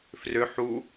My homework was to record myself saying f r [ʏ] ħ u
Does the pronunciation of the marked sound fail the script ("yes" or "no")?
no